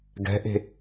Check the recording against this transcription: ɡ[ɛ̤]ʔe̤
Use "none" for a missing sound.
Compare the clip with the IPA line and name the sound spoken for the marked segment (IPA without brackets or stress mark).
ɛ̤